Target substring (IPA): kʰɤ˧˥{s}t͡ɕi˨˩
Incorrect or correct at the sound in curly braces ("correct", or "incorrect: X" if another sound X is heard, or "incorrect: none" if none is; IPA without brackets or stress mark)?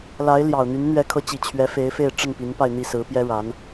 incorrect: none